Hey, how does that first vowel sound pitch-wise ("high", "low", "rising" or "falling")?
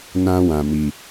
high